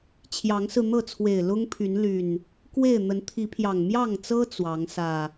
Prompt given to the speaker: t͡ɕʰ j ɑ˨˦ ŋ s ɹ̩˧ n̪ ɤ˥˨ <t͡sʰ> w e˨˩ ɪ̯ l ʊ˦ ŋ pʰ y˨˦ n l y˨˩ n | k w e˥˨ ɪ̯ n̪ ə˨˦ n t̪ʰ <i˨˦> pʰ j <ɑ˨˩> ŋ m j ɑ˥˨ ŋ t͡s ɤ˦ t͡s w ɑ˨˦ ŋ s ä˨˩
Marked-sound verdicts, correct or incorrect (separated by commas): correct, correct, correct